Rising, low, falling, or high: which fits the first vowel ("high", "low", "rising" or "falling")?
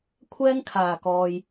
high